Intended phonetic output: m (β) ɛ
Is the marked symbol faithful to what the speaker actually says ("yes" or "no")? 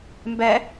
no